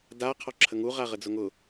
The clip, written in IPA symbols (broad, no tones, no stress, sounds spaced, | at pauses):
d a qʰ ɔ ǁʰ ə ŋ u ʁ a ʁ ə d͡z ʊ ŋ ʊ